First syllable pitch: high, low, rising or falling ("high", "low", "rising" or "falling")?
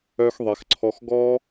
high